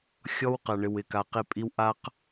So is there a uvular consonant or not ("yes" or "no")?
yes